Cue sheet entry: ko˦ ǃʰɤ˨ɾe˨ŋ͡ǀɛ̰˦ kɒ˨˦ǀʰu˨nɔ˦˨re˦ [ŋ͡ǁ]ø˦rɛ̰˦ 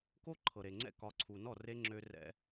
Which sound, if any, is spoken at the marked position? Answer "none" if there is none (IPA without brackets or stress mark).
ŋ͡ǁ